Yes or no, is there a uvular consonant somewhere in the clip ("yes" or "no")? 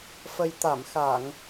no